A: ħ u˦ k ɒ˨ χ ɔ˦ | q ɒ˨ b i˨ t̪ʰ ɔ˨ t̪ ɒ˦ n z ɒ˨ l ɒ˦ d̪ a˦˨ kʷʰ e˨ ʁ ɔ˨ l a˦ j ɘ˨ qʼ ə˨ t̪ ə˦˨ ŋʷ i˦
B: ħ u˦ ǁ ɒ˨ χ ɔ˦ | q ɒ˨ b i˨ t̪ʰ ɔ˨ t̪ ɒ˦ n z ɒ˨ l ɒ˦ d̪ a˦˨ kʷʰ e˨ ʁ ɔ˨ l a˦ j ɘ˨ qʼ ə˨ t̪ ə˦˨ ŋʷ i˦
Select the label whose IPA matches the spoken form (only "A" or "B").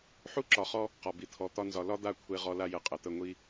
B